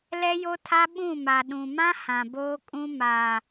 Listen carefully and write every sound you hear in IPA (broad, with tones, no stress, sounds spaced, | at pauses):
l ɛ˦ j o˦ tʰ a˦ ɓ ũ˦˨ m a˨ ɗ ũ˨ m ã˦ h ã˨ b oː˦ kʼ ũ˦ m a˨